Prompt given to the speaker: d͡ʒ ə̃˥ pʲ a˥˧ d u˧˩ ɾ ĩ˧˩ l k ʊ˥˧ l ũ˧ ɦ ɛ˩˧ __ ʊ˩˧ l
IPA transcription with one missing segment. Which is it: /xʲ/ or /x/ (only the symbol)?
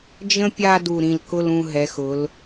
x